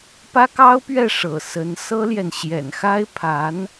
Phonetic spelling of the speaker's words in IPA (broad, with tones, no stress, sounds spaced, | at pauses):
p ä˥ k ɑ˥ ʊ̯ p ɥ ɛ˥˩ ʂ ɤ̰˨˩ s ə˧˥ n s ɤ˥ l j ɛ˨ n ɕ j ɛ̰˨˩ n x a˥ ɪ̯ pʰ a˧˥ n